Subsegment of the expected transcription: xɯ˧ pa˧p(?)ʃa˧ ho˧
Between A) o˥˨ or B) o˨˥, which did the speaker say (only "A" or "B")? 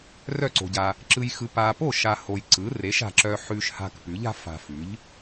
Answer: A